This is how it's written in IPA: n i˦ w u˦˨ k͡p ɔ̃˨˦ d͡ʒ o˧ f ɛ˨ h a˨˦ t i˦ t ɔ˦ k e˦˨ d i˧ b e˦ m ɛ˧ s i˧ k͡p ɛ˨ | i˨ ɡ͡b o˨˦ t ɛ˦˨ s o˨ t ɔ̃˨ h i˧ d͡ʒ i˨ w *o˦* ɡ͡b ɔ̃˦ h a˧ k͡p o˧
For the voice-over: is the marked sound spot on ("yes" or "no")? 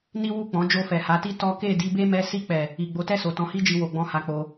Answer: no